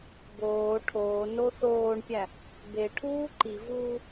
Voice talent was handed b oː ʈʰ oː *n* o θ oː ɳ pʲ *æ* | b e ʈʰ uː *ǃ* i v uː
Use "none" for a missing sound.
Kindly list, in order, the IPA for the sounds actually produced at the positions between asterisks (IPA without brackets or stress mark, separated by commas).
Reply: n, æ, ǃ